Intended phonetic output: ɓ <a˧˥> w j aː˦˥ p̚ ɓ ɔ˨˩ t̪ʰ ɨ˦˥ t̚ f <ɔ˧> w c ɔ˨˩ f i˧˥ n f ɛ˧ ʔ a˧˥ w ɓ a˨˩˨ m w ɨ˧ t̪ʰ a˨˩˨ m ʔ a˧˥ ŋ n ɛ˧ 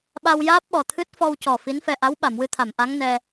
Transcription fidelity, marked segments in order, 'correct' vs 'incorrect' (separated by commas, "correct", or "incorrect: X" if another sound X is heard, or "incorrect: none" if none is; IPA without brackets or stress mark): incorrect: a˧, correct